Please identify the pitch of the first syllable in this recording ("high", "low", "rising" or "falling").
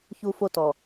high